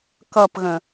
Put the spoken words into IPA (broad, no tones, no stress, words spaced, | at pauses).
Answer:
kʌpɣə̃